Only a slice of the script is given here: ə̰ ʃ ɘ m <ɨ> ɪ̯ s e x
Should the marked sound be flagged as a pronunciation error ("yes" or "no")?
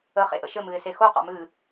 no